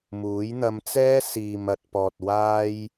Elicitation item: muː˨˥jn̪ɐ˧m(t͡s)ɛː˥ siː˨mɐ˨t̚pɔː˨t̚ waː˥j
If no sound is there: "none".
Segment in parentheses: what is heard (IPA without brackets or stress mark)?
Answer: t͡s